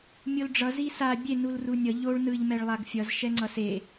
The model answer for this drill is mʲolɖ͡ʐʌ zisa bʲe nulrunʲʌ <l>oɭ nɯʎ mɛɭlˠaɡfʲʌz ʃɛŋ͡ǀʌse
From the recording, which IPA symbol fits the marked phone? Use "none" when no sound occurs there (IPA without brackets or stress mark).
ʎ